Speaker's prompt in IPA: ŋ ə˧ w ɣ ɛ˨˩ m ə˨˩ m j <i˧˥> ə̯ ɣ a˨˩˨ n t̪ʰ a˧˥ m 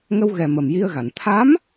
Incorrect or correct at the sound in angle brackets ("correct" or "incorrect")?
incorrect